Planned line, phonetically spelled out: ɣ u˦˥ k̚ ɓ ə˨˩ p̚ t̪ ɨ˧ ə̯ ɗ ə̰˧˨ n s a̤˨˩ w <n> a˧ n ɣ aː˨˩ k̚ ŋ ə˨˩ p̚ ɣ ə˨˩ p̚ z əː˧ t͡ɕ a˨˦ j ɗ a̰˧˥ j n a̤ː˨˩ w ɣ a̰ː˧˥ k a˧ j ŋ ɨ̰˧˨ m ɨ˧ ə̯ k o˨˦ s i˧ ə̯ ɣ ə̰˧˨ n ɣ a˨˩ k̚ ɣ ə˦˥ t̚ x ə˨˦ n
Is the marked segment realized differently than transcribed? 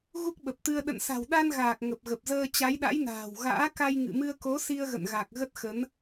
yes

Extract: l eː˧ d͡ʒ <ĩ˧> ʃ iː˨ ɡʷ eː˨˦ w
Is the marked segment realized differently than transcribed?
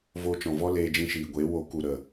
no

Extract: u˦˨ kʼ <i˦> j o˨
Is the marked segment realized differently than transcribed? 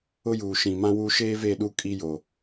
no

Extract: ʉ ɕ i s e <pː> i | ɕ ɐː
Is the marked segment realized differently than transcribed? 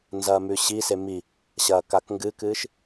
yes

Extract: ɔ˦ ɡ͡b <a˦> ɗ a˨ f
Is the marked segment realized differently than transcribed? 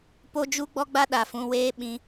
no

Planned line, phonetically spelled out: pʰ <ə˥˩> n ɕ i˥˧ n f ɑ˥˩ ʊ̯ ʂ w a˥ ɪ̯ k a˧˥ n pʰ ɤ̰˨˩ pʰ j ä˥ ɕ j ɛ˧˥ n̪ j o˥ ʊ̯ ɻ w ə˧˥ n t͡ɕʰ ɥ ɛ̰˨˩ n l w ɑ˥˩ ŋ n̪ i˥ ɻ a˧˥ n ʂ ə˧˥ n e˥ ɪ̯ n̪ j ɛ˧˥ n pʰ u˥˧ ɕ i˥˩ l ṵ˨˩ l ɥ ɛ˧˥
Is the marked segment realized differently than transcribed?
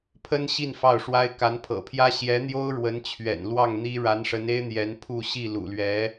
yes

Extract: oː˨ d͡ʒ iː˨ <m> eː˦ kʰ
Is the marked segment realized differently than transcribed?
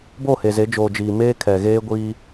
no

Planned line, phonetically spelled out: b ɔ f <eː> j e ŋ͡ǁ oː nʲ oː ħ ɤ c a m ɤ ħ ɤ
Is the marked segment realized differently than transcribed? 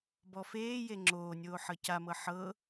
no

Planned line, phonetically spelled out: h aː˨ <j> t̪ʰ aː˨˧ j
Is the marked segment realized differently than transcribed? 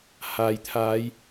no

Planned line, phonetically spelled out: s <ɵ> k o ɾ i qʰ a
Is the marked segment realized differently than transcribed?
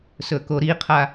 no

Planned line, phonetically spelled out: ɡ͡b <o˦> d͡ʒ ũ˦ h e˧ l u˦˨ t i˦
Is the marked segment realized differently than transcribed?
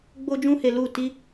no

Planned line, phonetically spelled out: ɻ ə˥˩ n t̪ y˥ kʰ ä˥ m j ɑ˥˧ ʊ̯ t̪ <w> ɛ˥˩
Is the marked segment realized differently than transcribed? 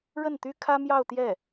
yes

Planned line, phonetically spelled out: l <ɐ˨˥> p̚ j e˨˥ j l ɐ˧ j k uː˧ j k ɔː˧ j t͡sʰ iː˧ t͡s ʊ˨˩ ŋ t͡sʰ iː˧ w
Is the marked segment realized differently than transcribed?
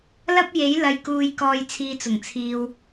yes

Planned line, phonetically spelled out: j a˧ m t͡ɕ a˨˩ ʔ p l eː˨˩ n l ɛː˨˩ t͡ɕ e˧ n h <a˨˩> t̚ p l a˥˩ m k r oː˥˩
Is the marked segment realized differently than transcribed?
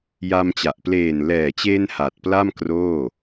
no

